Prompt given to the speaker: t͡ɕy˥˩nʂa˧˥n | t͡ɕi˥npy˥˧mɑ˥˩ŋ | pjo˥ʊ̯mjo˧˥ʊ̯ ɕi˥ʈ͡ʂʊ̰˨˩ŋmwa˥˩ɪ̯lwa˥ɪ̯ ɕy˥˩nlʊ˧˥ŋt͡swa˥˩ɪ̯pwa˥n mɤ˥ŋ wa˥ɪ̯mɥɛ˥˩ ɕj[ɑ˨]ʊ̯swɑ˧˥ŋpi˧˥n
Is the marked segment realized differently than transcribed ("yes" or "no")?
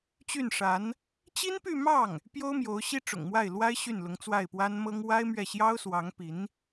yes